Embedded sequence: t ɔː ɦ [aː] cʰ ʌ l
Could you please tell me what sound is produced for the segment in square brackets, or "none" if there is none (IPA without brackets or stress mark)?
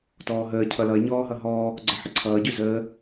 əː